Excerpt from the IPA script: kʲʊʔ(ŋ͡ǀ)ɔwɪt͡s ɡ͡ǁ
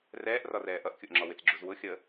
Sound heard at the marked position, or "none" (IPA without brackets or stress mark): ŋ͡ǁ